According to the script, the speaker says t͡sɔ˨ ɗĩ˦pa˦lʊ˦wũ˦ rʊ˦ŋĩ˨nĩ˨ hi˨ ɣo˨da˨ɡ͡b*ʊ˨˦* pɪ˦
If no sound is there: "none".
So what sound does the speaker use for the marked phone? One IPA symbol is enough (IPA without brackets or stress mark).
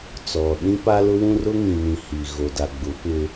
ʊ˨˦